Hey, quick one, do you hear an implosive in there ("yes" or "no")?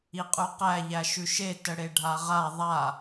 no